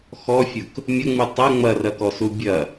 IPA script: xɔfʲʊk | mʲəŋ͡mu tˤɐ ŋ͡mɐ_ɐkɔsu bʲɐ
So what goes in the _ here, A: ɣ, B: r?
B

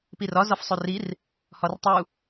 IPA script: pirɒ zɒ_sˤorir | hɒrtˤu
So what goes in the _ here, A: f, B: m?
A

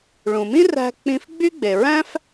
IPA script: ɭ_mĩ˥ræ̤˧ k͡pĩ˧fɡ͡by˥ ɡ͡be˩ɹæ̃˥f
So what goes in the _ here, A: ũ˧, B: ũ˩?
B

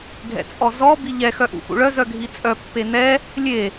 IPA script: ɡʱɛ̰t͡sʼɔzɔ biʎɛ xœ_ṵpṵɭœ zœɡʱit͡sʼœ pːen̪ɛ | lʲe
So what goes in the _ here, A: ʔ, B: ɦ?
A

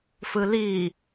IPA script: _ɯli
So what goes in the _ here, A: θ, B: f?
B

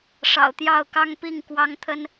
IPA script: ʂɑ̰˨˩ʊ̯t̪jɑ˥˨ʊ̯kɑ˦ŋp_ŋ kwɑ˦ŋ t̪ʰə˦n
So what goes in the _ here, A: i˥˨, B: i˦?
A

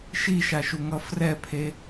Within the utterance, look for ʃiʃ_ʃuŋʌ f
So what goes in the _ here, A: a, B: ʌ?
A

